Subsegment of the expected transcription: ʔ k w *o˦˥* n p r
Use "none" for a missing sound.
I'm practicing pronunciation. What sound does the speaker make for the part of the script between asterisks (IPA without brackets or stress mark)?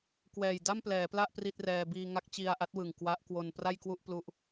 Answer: o˧